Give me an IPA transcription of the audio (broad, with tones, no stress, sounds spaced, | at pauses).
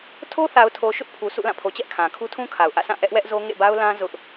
tʰ o˦ θ a˨ ʊ̯ tʰ o˨ ʃ ʊ˦ ʔ pʰ u˨ sʰ ṵ˦˨ l ã˦˨ pʰ o˨ t͡ɕ ɛ˦ ʔ kʰ ã˨ kʰ u˦ tʰ ũ˦ kʰ a˨ ʊ̯ ʔ ä̰˦˨ sʰ ã˦˨ ʔ ɛ˦ ʔ w ɛ˦ ʔ z o˦ ŋ ḛ˦˨ b a˦ ʊ̯ l ã˦ z ʊ˦ ʔ